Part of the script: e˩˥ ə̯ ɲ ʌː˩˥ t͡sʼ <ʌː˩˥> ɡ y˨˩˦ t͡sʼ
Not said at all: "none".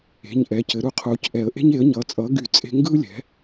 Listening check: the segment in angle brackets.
ʌː˩˥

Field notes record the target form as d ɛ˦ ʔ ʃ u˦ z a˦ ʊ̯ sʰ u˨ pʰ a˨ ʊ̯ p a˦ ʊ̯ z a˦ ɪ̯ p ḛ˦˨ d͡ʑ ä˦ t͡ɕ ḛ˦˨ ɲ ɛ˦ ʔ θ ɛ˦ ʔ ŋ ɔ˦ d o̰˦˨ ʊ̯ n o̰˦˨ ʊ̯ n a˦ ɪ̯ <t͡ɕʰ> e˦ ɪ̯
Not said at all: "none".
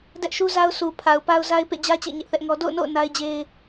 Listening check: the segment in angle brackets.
d͡ʑ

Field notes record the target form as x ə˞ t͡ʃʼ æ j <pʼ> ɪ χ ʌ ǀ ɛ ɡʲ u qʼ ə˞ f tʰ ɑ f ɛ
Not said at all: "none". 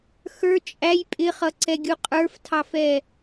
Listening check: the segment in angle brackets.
pʼ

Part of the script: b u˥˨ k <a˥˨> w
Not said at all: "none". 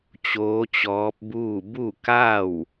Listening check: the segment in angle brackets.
a˥˨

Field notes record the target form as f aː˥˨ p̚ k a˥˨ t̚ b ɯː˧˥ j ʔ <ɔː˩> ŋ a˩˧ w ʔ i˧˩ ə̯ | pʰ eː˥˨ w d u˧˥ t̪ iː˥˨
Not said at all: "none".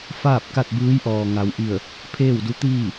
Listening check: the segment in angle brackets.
ɔː˩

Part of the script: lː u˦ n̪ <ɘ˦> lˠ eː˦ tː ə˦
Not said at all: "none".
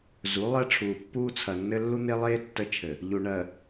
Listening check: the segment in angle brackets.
e˦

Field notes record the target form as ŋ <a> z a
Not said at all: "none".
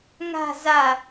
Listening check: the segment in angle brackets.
a̤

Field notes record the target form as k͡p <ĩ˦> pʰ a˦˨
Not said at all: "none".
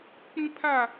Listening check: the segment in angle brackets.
ĩ˦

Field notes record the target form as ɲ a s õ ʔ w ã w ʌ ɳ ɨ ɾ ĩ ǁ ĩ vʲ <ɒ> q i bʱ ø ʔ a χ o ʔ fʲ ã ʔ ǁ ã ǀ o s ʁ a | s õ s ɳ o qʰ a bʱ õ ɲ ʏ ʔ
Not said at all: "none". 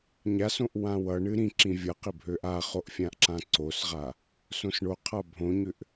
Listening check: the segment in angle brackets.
ʌ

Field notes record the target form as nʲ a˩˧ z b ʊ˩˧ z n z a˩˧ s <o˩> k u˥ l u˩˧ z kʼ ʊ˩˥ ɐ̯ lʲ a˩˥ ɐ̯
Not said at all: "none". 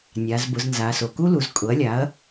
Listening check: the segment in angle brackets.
o˩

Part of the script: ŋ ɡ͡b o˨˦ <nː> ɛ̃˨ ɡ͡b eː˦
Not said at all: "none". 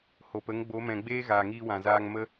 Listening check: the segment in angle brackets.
m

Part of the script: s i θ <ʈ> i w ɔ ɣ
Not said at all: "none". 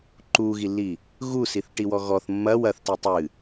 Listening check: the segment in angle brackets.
ʈ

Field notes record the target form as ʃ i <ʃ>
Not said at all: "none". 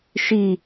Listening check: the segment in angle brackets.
none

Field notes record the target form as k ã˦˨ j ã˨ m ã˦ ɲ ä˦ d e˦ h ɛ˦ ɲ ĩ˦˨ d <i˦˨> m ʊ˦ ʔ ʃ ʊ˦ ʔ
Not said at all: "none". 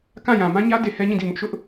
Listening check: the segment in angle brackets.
i˦˨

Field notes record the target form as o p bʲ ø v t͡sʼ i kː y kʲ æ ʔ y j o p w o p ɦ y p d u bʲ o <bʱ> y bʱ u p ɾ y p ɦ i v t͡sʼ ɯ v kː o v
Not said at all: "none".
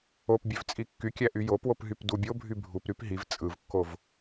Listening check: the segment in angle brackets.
bʱ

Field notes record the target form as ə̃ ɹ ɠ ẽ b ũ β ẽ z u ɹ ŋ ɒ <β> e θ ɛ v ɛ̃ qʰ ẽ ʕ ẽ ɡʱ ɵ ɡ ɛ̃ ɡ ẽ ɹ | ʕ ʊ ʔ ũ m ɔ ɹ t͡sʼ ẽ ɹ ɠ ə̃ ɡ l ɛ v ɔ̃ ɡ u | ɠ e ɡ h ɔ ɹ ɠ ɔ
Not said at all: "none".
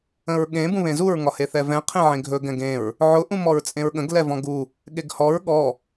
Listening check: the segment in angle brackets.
h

